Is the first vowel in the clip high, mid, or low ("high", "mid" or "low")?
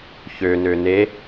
mid